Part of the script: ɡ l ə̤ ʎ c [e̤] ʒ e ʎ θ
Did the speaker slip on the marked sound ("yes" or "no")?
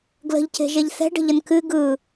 no